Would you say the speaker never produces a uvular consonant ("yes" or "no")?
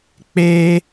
yes